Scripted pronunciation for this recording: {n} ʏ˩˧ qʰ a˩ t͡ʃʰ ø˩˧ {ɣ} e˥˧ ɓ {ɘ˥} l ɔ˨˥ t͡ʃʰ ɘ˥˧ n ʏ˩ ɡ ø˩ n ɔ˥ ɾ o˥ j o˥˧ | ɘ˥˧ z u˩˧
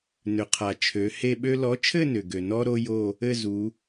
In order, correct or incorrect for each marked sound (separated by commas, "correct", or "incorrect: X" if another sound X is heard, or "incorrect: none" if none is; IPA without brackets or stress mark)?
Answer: correct, incorrect: h, incorrect: ø˥